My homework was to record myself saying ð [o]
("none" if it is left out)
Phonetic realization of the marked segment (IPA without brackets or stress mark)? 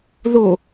o